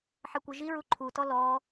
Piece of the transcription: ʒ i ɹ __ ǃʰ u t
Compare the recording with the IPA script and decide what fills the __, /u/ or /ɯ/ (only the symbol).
u